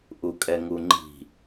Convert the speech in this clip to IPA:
ʔ u kʼ ɛ ŋ u ŋ͡ǃ i̤

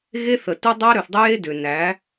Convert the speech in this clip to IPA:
ɣ e˦ θ ə˨ t u˦ dˤ æ˦ ɾ ø˨ θ dˤ ɨ˦ j e˦ d ʏ˨ n æ˨˦

